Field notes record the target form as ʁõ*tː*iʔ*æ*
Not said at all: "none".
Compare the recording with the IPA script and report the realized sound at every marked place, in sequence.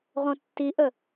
tː, ə

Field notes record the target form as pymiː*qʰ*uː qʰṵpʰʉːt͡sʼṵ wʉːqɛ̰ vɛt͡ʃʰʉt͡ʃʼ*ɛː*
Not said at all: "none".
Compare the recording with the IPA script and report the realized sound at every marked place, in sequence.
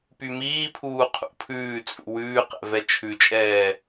pʰ, ɛː

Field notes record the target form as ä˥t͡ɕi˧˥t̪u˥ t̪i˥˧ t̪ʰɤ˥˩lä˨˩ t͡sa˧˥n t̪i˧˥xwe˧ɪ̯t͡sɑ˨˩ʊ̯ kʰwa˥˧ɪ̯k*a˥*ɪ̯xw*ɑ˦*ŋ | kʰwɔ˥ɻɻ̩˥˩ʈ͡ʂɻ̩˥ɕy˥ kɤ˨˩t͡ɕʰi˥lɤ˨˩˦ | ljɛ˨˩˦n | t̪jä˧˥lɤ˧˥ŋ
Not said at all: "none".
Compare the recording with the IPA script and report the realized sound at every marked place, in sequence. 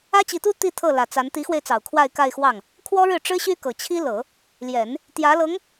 a˥˧, ɑ˥˩

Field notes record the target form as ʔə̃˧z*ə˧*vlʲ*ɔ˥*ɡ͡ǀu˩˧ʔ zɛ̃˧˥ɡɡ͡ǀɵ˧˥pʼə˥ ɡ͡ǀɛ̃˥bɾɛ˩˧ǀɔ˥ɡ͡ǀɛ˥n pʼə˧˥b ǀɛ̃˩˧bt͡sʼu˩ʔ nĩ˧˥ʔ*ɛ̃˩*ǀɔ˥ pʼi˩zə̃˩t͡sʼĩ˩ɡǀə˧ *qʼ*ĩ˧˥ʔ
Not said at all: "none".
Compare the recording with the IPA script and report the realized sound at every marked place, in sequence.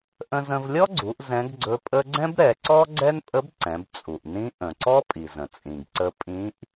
ə̃˧, ɔ˥, ə̃˩, pʼ

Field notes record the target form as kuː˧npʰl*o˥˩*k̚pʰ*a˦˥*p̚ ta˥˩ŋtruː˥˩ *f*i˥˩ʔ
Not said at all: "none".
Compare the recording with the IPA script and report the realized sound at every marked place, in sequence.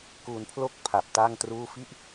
o˥˩, a˨˩, f

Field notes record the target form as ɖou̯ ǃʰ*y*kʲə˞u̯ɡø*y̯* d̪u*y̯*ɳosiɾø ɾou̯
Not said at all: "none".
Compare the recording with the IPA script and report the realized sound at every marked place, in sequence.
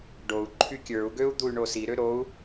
y, u̯, y̯

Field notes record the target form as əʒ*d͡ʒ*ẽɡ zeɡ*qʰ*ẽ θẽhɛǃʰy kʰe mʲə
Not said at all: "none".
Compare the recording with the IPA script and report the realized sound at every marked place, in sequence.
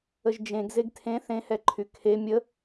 d͡ʒ, tʰ

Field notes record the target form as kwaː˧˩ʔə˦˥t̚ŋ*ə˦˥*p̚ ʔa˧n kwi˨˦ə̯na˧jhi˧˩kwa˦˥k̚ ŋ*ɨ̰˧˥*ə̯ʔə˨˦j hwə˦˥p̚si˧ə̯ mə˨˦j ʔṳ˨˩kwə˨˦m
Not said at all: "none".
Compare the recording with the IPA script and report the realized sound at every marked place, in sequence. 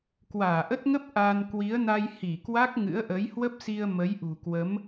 ə˦˥, ɨ̰˧˥

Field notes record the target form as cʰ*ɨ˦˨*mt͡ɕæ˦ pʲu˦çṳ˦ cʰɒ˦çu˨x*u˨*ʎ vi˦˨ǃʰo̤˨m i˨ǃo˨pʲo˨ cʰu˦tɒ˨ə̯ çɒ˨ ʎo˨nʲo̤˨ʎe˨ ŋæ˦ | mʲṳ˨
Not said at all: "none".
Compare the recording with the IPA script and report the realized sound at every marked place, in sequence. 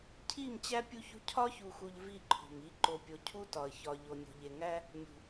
i˦˨, u˨

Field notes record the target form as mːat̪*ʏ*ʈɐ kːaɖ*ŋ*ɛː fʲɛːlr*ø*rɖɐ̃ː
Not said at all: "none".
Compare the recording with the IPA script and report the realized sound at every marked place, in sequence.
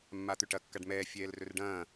ʏ, m, ɵ

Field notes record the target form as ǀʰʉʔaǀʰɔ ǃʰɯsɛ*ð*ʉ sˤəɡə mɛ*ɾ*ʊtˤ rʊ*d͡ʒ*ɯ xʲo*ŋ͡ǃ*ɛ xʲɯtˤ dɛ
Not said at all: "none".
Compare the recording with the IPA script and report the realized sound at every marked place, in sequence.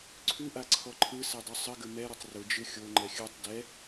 dˤ, ɾ, d͡ʒ, ŋ͡ǃ

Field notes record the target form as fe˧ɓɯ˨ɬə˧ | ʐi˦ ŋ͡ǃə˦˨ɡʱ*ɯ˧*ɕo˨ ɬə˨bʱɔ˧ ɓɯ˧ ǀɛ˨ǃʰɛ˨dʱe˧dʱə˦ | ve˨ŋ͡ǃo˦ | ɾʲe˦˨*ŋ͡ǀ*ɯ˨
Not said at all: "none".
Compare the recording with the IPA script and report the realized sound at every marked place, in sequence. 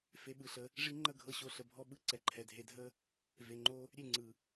ɤ˧, ŋ͡ǀ

